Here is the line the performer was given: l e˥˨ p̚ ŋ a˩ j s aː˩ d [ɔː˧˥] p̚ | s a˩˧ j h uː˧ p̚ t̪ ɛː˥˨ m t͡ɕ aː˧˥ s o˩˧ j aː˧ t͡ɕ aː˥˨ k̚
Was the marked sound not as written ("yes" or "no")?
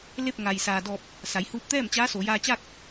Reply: yes